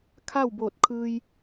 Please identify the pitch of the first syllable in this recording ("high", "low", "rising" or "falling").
falling